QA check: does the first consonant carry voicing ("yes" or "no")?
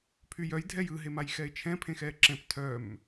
no